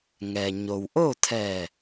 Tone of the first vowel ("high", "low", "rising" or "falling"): low